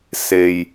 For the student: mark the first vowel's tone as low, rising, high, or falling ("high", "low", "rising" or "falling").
low